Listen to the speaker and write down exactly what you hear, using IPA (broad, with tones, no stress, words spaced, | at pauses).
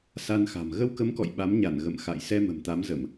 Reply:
sa˧nxa̤˨˩m ɣə˧wkə˨˦mkɔ̰˧˨j ɓa˨˦mɲa˧˩n ɣə̰˧˨mxa̰˧˨j sɛ˧mə̤˨˩m t̪a˨˦mzə˧˩˨m